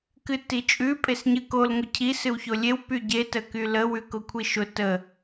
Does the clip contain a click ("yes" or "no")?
no